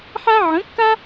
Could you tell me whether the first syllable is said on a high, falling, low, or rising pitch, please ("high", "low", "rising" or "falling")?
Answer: high